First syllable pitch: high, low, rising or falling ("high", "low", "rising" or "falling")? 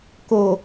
low